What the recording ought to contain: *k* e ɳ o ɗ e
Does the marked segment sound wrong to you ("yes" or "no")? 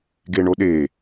yes